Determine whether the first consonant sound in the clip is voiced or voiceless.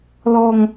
voiced